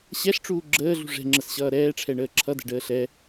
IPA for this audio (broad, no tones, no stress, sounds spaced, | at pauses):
ɕ ɛ ɬ ʈ͡ʂ uː ɡ͡ǁ əː ɮ ṳ ʐ ɛ̤ ŋ͡ǁ ə s ɕ ʌː ɾ ɛː ʈ͡ʂʰ ɛ ɳ əː ǁʰ ʌ d ɛ̤ ɖ əː ɬ ɛ